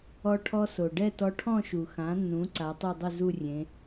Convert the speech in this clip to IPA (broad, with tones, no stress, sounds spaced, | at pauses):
ɔ˧ ʈʰ ɔ˧ s o˩ ɖ ɛ˥˧ t ɔ˧ ʈʰ ɔ̃˥˧ ʃ u˩ x ã˩˧ nː ũ˩˧ ǀ a˩˧ tˤ o˥˧ dˤ ɪ˥˧ z u˥˧ rʲ ẽ˩˧